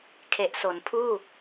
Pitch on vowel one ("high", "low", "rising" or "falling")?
low